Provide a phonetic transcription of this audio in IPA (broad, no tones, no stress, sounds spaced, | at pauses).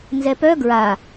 n z ɛ p œ ɡ ɹ a